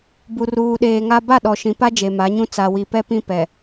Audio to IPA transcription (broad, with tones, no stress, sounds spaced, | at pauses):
b u˨ r uː˨ ɗ eː˨ ŋ a˦ b a˦˨ ɗ ɔ˨ ʃ ĩ˨ p a˦ d͡ʒ e˨ m a˨˦ ɲ ũ˦ t͡s a˨ w i˨ p ɛ˦ p ĩ˦ p ɛ˨